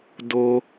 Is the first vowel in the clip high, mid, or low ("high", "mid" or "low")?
mid